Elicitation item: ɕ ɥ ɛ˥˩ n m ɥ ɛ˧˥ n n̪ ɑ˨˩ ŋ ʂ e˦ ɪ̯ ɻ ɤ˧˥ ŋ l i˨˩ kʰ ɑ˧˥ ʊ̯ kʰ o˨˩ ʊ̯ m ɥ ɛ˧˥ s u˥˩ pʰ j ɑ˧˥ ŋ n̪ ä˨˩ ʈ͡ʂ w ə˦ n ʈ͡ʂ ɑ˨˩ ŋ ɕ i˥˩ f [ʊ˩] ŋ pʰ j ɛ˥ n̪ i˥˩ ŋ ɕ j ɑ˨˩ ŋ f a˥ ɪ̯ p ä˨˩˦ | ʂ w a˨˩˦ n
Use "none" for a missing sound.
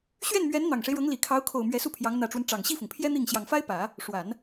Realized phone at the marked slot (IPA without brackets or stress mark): ʊ˩